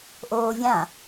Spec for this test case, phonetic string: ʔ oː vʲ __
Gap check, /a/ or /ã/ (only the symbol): ã